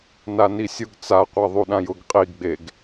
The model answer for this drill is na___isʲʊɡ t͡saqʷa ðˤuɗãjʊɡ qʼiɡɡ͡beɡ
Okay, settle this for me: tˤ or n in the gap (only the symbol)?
n